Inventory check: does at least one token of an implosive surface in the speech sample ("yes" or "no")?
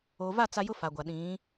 yes